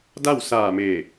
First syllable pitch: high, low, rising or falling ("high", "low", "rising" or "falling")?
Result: falling